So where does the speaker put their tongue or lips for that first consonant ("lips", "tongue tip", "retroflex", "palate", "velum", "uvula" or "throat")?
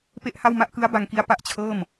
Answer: lips